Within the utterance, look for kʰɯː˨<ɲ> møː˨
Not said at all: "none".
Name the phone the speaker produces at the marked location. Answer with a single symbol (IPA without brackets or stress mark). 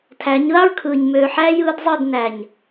ɲ